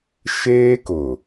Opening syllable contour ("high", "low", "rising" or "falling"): high